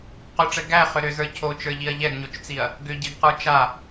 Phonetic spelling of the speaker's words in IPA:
q ʏ ʈ͡ʂ ɛ ɡ æ χ ʏ ɾ ʏ z ə˞ cʰ o t͡ʃ ə˞ ʎ i ɐ̯ ʎ ɛ ɡ ɲ o t͡ʃ t͡s i ɐ̯ | ɡ ʏ ɟ i ɡ q ə˞ t͡ʃ a

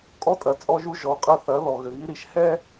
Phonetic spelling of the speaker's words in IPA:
kʼ ɔ˦ tʼ ɐ˨ t͡sʼ ɔ˦ ʒ u˦ ʒ ɔ˨˦ qʼ ɐ˦ θ ɐ˨˦ ð ɔ˨ ɣ ɘ˨ ɣ i˦ ɾ i˨ ʃ h ɛ˦

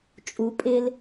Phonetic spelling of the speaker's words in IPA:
t͡ʃʼ u pʼ ɪ l

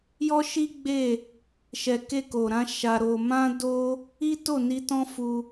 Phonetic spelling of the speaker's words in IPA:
j ɔ˦ ʃ i˦ ɡ͡b e˦˨ | ʃ ɛ˨ k e˧ k o˨ ɾ ã˨˦ ʃ a˧ ɾ o˧ m ã˦ d o˦ | i˦ t o˦˨ n i˧ t ɔ̃˦ f u˧

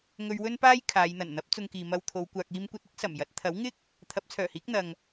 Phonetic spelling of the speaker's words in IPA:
ŋ ɵ˧ ɥ w ɵ˥ n p aː˥ j kʰ aː˨˧ j n̪ ɐ˨˩ n n̪ ɐ˨˥ p̚ t͡s ʊ˧ ŋ k iː˨ m ɐ˧ w t̪ʰ o˨˧ w kʷ aː˧ k̚ iː˥ m kʷ ɐ˧ t̚ ɪ˥ k̚ s ɐ˨˩ m j ɐ˨˥ t̚ t̪ʰ ɐ˨˥ w ŋ ɪ˥ k̚ | t̪ʰ ɐ˨˥ p̚ t͡sʰ œː˨˩ h iː˨˥ k̚ n̪ ɐ˨ ŋ

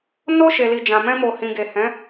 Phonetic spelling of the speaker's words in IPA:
n o˧ ʃ e˨ l i˨ d͡ʒ ã˨ m ɛ̃˧ m o˨ h ĩ˨ ɡ e˨ h ɛ̃˨˦

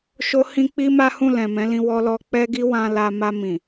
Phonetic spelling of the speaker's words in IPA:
ʃ o˦ h ĩ˦ k͡p i˦ m a˦ h ũ˦˨ l ɛ̃˨ m ɛ̃˨˦ l ĩ˧ w ɔ˧ l ɔ˧ k͡p ɛ˦ ɡ i˦ w ã˧ l a˧ m a˧ m ĩ˨

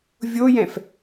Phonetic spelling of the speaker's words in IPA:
vʲ o j ɛ̃ f

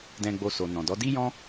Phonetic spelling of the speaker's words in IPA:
d ɛ̃˧ ɡ͡b o˧ s o˨ n ɔ̃˨ d ɔ˨˦ d i˦ j ɔ̃˦

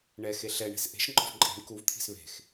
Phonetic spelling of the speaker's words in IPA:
ɳ ɛ x e ɬ ɛ ɳ e̤ s ʔ e̤ ʃ ŋ͡ǃ ɔ̤ v ǃʼ i̤ ɳ k u v t̪ʰ i̤ s β e̤ x

